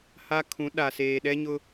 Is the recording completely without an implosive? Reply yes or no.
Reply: no